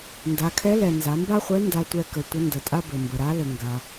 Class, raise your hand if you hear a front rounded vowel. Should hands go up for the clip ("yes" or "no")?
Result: no